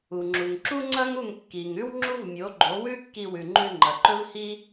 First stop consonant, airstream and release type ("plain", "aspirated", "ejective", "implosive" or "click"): click